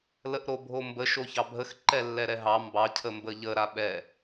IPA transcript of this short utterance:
ləʔɾobʱombə ʃoçɑbʱəx ǃɛlːɛɾɛɦɑ mbɑ cʰəmbəʎə ɾaɓɛ

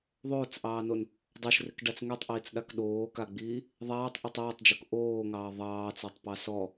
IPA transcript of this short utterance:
ðˤoːt͡sʔɑːnon | dˤoʃrɪkɖat͡s ŋɛtˤʔiːt͡sɗak ɗoːkaɡ͡biː | ðˤaːtˤʔotˤ ɛːtˤd͡ʒok ʔoːŋɑː ðˤɑːt͡sɑtˤpɑ sɔ

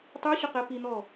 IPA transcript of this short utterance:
tˤuɕʊqɛ pin̪ɔ

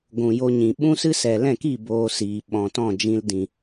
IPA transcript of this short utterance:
ɡʷũ˨jo˧ɲĩ˨ ɓũ˦sɨ˦ sɛ˨lɛ̃˦˨ki˦˨ boː˧siː˨ ɓɔ̃˨tɔ̃˦˨d͡ʒĩ˧l dĩ˨

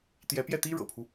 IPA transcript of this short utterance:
t̪jɛ˧˥pjɛ˥˩t̪i˥ ɻɤ̰˨˩pʰu˦

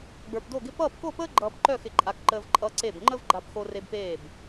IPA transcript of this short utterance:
ɡ͡bə˞˧pdo˥˧ɡɪ˥ pʌː˥˧pko˥˧pəː˥ɡ͡ǃʌː˧p ǃœ˥˧xɪ˧˩ǃʼa˧kǃəː˧v ǃʼʌ˧ǀe˧˩b ŋ͡ǃə˥vɡ͡ǃa˧pxo˧ re˧bpeː˧˩b

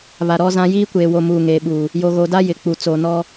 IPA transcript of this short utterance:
βa˨ɾɔ˦zã˦ jiː˦kʷeː˨wo˨ muː˨ŋeː˨ɓuː˨ | jo˨ɣo˨da˦ jɪ˨k͡pu˨ t͡soː˨nɔ˦

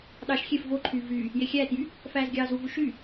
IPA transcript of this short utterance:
ɗɑʃ xʲef voǃʰyː vyː | jexʲæːtjy | fæːzɡʲɑːzuvu ʃy

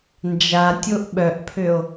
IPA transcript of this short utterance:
nd͡ʒatʲoʔ ɓœʔpʰøo̯

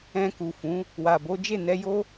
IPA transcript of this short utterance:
ɛ̃˧ku˨fũ˨˦ | wa˨bo˨˦ d͡ʒe˦˨nɛ˧jo˦

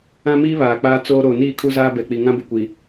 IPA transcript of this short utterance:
ã˦miː˦ βaː˨k͡paː˦ t͡soː˦ ɾoː˨niː˦˨kʰu˦zaː˦ bɛ˨k͡pi˨ ŋã˦bʊ˨kʷi˨

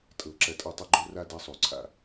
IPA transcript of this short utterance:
tʼɤ˨˩ǁɐ˨˦tʼɐ˦˨tˤə˦ ɡ͡ǃo˦ra˦ da˦sˤo˧˩˧ǀʰa̰˦˨

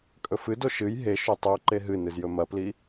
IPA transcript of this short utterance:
kʼɵfɨdo ʃɨj ɦeʃo tˤoǃe ɦɨnɨz jɵmɐpli

